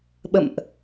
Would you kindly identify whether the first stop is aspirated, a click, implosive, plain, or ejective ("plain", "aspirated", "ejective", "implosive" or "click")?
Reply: implosive